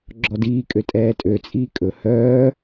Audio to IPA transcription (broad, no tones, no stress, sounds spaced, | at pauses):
ɡ͡ǁ ɔ d iː kʼ ø tʼ ɛː tʼ ø t͡sʼ iː kʼ ɵ h œː